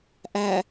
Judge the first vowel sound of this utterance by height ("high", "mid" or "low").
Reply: low